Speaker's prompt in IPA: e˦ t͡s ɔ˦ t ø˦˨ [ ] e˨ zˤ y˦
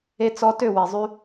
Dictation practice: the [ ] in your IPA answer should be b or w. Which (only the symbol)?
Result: w